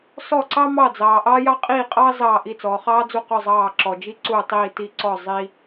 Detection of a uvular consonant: present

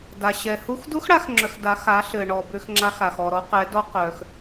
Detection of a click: present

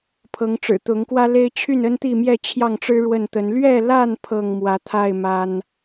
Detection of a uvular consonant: absent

